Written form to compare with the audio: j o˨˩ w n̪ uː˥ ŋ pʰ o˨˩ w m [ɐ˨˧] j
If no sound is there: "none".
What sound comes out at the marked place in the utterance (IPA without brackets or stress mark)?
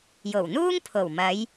ɐ˨˧